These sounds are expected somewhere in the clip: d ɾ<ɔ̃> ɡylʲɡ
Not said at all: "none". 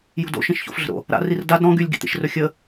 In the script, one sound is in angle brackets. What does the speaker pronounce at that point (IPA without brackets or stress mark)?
ɔ̃